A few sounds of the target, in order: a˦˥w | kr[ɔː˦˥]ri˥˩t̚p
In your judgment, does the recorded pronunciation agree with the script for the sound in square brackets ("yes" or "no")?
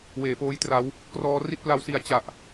yes